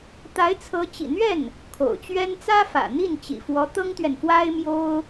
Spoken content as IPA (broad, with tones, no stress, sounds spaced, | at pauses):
t̪ a˧˥ ɪ̯ t͡sʰ ɤ˧˥ t͡ɕ ḭ˨˩ n̪ ɥ ɛ˥˩ n | kʰ o̰˨˩ ʊ̯ t͡ɕ ɥ ɛ˥ n t͡s ä˥ f ä̰˨˩ n̪ i˥˩ n t͡ɕ ḭ˨˩ f w ɔ˧˥ t̪ ɤ˥ ŋ t̪ ɥ ɛ˨ n f w a˥ ɪ̯ m j o˥ ʊ̯